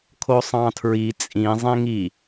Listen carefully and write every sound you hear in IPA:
kʰosˤɑ̃tʰɹi t͡sʼĩ zˤẽŋi

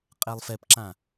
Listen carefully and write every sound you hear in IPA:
qʼɛlˠfɛpǁã

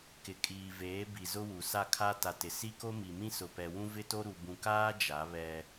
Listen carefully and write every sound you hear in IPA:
kɪ˨kʼiː˨veː˨˦ bi˨zʊ˦wu˨ sa˦˨kʰa˦ta˨tɪ˨ si˦ko˦mi˨mĩ˦ sʊ˨pɛ˨wũ˦ vɪ˦to˦ ɾu˨ bũ˨kaː˦ d͡ʒa˨˦βɛ˦

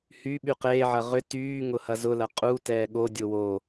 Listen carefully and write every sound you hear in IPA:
hy ɓyqeːʕɐ ʁʏ tyːŋʊ hɐzʊlɐ qʼutɛː ɠodʲʊ wo

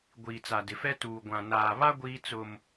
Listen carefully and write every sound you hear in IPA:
ɡʷiː˨t͡sa˨dɪ˨fɛ˦ tuː˨ɡʷã˨ naː˨βa˦ ɡʷiː˦t͡sʊ˦m

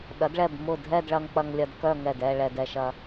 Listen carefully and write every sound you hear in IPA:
ɗɐ˩˧dɭɛ˧˩b mʊ˧˩ dʱɛ˥˧dɭɐ˧ŋk͡pɐ˧ŋ lʲɐ˧dkœ˥˧ŋɛ˧˩dɛ˥˧ ɭɛ˧dɛ˧ʃɐ˧

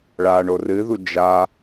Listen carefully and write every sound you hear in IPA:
ɭaɳo rɨðu d͡ʒa

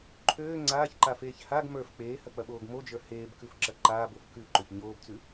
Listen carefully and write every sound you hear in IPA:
ǃʰøː ŋ͡ǀaːçǃafeːç haɡ mə˞f k͡peːhɐk͡pɐɓoːɡ mod͡ʒə˞ heːbkʉfǁɐ ǃaːbof kʉǃøç ɲoːbt͡sʉ

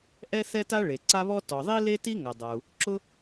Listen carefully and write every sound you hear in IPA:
ʔɛ˥θɛ˥ta˥ ɭe˩ǀa˥βɔ˥ tɔ˩ðˤi˥ le˥ti˥ŋa˩dˤa˩u̯ | ǁʊ˥

